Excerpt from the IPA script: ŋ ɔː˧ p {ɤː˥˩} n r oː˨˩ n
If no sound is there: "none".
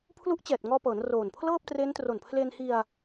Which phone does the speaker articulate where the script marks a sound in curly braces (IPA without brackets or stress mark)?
ɤː˩˦